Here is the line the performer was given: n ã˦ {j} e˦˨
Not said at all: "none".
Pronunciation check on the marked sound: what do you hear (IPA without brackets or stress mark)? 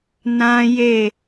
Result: j